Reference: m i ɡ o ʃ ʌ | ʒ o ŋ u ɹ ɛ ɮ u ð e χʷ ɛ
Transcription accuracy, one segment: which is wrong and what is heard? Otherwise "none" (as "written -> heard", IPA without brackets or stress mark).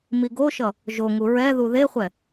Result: ɮ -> ð